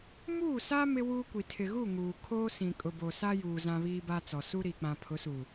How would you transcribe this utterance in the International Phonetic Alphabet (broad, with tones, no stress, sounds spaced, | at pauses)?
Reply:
m uː˦˨ s a˦ m ɪ˦ w uː˦ kʷ i˨ tʰ ɪ˨ ɣ u˦˨ ŋ uː˨ kʰ oː˦ s ĩ˨ kʼ ʊ˨ b o˨ s a˦ j uː˨ z ã˦ β iː˦ b a˦ t͡s ɔ˨ s u˦ ɾ i˨ k͡p ã˨ pʰ ʊ˨˦ s uː˨